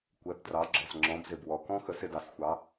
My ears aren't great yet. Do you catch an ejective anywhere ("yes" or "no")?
no